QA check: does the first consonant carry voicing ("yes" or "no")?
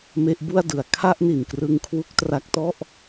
yes